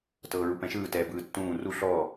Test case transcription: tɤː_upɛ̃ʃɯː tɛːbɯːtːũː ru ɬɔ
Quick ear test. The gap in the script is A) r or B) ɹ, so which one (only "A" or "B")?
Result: B